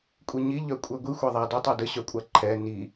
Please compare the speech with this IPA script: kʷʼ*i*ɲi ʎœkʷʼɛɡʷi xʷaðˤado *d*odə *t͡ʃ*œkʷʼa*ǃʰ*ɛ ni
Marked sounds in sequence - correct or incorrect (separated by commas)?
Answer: correct, incorrect, incorrect, correct